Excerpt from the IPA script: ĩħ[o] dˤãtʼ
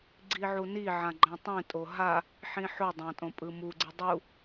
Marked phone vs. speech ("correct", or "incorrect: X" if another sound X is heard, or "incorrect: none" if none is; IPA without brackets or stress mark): correct